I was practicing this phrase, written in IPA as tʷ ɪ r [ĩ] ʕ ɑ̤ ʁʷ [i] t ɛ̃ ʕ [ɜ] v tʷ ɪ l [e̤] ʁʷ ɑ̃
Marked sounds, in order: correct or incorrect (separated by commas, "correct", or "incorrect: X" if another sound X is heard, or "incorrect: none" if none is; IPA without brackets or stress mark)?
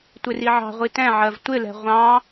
incorrect: i, correct, correct, incorrect: ɛ̤